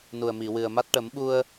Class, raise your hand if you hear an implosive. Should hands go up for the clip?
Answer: yes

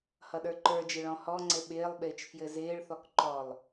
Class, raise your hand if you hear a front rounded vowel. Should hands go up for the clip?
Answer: no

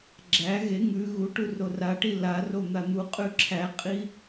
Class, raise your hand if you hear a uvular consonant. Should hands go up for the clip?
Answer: yes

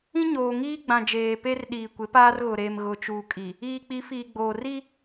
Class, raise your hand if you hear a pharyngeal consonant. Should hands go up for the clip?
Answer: no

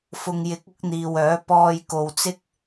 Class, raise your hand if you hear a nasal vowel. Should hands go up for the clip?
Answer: no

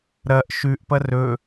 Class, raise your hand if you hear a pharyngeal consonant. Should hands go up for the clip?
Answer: no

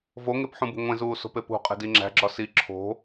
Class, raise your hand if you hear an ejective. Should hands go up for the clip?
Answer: yes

